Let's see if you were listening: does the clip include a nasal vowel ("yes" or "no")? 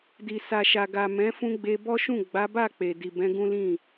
yes